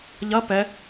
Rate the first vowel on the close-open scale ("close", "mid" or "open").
open